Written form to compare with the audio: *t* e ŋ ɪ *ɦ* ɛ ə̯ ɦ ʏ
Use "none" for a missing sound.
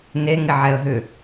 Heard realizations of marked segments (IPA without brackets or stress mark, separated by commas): n, ʕ